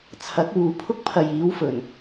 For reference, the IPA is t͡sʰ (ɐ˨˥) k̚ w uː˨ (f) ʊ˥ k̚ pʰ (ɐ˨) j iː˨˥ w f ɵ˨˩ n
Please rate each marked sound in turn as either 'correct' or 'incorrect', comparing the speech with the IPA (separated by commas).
correct, incorrect, correct